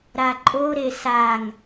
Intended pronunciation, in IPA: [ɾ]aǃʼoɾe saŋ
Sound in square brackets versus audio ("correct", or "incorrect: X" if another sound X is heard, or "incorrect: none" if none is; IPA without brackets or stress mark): correct